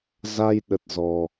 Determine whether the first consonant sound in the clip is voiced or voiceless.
voiced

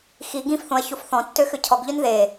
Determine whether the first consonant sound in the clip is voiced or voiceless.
voiceless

